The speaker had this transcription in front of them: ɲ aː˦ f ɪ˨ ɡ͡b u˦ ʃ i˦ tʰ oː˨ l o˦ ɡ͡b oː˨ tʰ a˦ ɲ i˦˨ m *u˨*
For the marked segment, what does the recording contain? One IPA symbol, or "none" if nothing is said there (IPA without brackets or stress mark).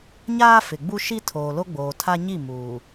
uː˨